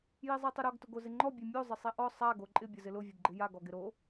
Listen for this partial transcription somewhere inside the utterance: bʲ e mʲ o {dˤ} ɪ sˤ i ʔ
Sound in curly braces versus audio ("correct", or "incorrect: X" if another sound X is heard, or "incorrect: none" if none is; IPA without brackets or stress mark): incorrect: zˤ